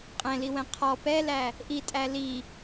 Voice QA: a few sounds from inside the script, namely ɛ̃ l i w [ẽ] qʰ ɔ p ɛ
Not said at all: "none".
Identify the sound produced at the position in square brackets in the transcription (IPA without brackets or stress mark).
ɛ̃